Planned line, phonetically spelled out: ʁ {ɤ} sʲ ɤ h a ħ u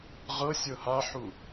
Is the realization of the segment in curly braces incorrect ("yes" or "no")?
no